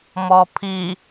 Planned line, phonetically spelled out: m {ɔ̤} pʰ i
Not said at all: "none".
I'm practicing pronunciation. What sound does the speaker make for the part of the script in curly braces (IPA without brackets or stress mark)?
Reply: ɔ